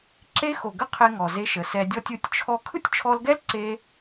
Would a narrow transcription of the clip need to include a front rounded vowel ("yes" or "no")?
no